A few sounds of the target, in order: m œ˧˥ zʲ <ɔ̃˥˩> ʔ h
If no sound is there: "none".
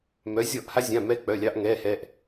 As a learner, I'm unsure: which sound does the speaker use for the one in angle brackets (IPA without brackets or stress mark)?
ɔ˥˩